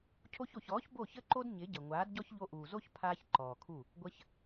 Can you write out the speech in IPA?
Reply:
cʰo˧ço˨çɔː˨˦ç bo˦˨çə˦ǃo˦d ɲɪ˨˦ɟə˨ ŋʷaː˨˦dɟɔ˦ç ʎo˧ʔuː˨zo˦ç pʰaː˦çǃɔː˨kʰu˦˨ | ɡʷə˧ç

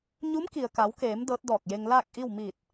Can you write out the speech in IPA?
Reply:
ɲu˧˥mki˩ə̯ka˩˧wkeː˩˧m dɤː˧˥t̚dɔː˧˩k̚je˧ŋ laː˥˨k̚ʔi˥˨w miː˧˩t̚

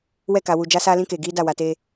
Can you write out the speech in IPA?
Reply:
wɛ˦˨ka˨wu˨ d͡ʒa˦saː˦lĩ˦keː˨ ɡiː˦da˦˨wa˨te˦

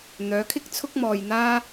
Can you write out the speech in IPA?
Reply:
n̪œː˨˧kʰɪ˥k̚ t͡sʰʊ˥k̚mɔː˧j n̪aː˥

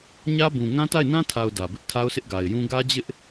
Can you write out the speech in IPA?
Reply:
ɲä˦bũ˨ ŋã˦ta˦˨ɪ̯nã˦tʰa˨ʊ̯ dä˨bɪ˦ʔ tʰa˦ʊ̯sɪ˦ʔɡa˨ɪ̯jũ˦ ɡä˦d͡ʑɪ˦ʔ

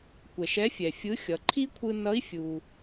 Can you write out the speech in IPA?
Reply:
kʷɛ˩ʃ ɛ˧˥fʲɛ˩ fʲɯ˧˥xʲʌ˩˧ ǃʰi˥kʷʰɯ˧ nʌ˧˥i̯fʲu˩

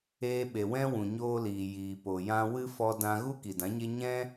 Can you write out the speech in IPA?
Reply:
eː˧ɓe˨ wɛ̃˦ wũ˨ɲoː˧liː˨ jiː˨po˨ jã˧ wɨ˦fɔ˧ dã˧ɣu˦ ki˨dã˨˦ɲe˦ ɲɛ̃˦

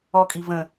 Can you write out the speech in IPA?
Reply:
ɔkʼi və̃

